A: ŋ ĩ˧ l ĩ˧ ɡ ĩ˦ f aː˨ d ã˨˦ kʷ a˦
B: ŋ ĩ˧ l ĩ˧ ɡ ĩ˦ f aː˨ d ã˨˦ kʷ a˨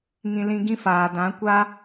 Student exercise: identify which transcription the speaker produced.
A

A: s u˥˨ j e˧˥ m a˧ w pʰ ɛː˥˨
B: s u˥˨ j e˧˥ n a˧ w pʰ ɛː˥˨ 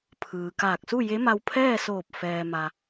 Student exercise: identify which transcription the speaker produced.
A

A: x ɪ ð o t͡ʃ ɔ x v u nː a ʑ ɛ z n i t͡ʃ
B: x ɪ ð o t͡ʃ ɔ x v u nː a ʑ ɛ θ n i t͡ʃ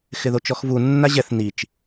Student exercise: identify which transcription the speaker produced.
B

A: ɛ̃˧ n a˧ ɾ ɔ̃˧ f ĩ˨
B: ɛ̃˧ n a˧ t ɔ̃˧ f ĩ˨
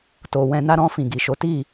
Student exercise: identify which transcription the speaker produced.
A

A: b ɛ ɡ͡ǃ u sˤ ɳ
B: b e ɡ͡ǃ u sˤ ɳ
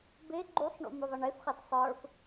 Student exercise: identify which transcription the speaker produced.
B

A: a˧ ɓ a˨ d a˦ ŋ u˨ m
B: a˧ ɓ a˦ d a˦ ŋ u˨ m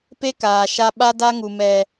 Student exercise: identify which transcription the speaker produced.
B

